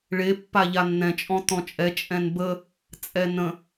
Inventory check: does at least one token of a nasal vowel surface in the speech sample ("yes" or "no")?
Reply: yes